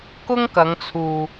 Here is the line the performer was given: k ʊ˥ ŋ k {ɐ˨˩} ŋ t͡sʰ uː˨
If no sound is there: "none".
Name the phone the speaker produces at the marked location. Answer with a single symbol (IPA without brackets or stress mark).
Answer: ɐ˨˧